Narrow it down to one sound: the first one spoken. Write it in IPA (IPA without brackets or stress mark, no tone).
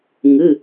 ŋ